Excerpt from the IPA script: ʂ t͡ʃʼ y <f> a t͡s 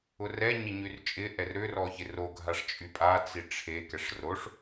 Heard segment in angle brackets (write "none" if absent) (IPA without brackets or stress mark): pʼ